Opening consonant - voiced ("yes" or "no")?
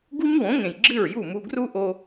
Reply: yes